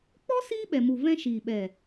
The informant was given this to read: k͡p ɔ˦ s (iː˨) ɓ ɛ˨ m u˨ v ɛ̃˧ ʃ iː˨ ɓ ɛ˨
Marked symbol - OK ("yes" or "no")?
no